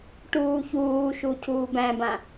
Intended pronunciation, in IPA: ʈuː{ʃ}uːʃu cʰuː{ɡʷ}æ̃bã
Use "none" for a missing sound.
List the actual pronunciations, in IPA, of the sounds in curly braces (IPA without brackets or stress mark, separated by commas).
ç, b